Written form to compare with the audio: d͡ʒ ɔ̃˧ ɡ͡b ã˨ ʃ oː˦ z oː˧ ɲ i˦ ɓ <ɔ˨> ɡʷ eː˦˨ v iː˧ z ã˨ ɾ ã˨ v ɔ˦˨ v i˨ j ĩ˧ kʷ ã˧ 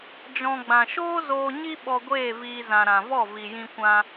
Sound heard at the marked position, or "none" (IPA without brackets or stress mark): ɔ˧